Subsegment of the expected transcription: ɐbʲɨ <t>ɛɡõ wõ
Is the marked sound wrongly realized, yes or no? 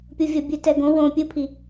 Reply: no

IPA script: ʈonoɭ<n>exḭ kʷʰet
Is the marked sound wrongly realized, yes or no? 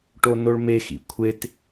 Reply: yes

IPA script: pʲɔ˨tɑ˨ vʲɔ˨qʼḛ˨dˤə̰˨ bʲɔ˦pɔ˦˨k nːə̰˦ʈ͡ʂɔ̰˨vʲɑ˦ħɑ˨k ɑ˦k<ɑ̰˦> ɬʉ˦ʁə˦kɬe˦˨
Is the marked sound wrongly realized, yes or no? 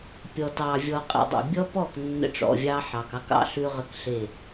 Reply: no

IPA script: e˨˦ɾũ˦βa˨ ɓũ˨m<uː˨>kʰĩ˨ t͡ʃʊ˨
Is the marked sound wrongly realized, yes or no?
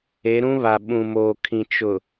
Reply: yes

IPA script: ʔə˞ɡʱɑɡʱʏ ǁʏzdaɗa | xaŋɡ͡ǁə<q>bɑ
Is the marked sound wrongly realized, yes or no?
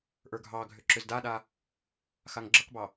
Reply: no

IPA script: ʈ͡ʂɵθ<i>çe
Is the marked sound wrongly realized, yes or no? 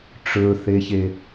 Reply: yes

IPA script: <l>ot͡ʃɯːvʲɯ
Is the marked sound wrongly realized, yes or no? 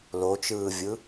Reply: no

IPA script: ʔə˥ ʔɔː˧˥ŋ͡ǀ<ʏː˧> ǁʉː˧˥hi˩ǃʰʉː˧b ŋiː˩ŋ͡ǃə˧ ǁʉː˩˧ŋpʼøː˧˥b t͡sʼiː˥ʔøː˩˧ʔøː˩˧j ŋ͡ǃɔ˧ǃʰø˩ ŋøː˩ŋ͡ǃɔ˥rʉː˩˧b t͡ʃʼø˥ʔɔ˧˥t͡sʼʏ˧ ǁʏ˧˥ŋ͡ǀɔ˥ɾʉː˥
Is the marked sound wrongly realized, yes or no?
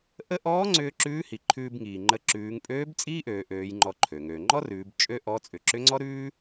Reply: no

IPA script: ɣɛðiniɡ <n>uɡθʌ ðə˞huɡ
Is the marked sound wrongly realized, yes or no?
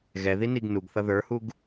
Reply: no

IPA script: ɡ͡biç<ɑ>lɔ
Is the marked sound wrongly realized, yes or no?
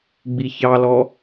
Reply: no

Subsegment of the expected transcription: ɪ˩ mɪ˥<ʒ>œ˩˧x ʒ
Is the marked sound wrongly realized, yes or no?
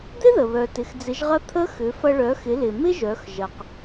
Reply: no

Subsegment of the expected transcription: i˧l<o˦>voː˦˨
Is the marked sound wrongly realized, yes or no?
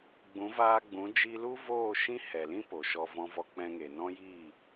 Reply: yes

